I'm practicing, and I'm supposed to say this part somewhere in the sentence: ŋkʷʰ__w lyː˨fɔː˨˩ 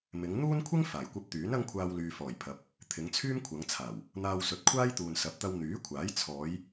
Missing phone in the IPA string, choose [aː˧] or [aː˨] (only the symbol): aː˧